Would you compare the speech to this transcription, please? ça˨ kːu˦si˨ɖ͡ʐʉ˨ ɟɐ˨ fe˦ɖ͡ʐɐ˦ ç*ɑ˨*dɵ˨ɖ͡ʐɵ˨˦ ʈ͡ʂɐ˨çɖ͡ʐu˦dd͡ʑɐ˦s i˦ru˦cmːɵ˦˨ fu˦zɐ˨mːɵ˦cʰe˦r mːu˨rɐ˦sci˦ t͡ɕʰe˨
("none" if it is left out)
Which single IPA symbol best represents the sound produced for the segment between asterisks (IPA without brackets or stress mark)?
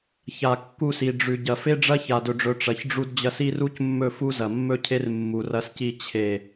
a˨